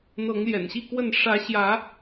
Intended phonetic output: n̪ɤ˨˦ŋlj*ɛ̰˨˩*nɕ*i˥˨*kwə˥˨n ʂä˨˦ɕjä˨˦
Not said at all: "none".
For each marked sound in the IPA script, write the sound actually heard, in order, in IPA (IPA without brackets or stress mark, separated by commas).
ɛ̰˨˩, i˥˨